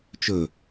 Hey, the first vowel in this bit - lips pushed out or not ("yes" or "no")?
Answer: yes